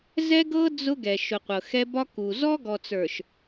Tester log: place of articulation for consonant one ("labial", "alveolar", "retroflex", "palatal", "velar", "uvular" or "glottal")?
alveolar